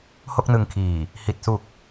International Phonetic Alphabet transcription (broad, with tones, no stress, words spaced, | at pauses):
ho˥˩k̚nɯ˧ŋkʰiː˨˩ | hi˨˩t̚su˨˩k̚